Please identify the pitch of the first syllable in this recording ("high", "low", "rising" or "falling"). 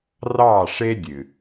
falling